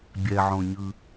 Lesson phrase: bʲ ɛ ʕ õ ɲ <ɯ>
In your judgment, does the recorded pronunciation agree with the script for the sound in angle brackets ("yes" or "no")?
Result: yes